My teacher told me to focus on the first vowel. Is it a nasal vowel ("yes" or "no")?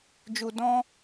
no